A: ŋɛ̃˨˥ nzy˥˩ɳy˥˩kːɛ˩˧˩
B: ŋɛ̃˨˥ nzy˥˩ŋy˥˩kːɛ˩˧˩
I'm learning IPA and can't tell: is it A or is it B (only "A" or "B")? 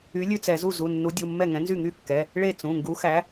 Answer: B